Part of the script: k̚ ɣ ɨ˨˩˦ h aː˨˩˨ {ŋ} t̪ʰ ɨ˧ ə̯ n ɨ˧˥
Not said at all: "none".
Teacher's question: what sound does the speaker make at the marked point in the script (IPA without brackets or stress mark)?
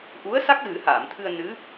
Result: m